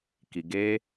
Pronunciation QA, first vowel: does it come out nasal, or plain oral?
oral